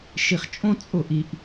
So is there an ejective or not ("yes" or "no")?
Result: yes